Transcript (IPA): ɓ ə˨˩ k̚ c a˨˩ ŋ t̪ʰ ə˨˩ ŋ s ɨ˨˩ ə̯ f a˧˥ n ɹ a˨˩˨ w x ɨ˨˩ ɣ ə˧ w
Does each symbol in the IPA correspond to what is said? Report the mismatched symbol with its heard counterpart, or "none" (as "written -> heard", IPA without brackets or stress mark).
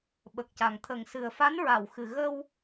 none